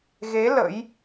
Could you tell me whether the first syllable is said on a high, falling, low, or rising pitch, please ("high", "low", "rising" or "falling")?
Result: rising